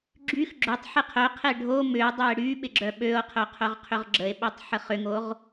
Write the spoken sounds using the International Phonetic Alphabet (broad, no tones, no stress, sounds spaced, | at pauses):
ɡ͡ǁ y x ɡ͡ǁ ʏ tˤ ħ ɪ qʰ œ qʰ e ɖʱ o m ʏ o̯ dˤ œ e̯ ɽ y ɓ ɪ ɡ͡ǁ œ ɓ ø o̯ qʰ œ qʰ œ ʁ qʰ ʏ ʁ ɡ͡ǁ ə e̯ ɓ ø tˤ ħ ə χ ʏ ŋ o ʁ